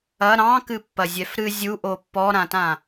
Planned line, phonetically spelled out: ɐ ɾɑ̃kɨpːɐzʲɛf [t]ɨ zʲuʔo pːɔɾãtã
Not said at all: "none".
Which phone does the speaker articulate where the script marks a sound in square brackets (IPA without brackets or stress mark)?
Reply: ɾ